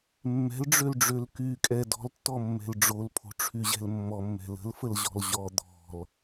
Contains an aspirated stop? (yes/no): yes